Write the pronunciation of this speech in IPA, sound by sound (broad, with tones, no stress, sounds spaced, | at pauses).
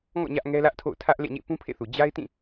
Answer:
ŋ ɔ̰˦˨ ɲ ä˦ ʔ ŋ ɛ˦ l ä˦ ʔ tʰ o̰˦˨ ʊ̯ tʰ ä˦ ʔ l ḛ˦˨ ɲ ḛ˦˨ p ũ˦ pʰ ḛ˦˨ θ u˨ d͡ʑ a˦ ɪ̯ t ĩ˦˨